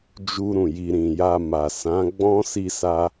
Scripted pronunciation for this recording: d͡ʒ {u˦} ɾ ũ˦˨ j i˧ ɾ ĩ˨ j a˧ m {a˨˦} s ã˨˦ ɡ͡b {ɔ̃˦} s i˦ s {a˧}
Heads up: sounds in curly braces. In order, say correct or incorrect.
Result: correct, incorrect, correct, incorrect

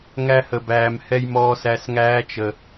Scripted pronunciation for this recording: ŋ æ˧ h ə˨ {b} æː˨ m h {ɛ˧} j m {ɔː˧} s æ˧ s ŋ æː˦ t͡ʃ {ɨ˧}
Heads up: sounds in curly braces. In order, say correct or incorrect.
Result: correct, correct, correct, incorrect

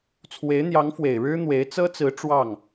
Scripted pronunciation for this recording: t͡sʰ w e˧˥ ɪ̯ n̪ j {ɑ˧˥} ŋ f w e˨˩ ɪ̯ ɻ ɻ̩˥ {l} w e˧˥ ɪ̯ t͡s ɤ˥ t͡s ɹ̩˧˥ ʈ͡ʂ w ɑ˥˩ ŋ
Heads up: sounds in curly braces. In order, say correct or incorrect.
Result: correct, incorrect

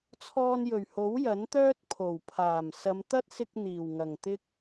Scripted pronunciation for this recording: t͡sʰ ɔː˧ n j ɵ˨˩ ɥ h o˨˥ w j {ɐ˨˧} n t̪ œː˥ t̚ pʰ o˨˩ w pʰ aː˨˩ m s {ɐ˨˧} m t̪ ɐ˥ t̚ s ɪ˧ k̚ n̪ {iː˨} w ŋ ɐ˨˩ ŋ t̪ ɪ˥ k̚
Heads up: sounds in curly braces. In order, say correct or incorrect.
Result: incorrect, correct, incorrect

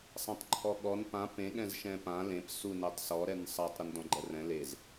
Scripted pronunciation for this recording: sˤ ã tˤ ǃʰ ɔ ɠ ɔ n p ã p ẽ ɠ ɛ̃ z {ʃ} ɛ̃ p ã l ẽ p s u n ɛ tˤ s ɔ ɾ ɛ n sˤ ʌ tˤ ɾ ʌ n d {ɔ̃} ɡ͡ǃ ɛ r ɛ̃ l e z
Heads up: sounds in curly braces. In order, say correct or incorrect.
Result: correct, correct

